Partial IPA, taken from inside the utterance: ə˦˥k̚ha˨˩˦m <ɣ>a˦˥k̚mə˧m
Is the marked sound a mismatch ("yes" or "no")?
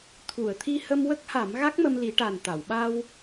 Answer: no